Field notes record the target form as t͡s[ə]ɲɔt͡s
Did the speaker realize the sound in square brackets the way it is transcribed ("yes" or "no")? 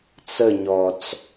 yes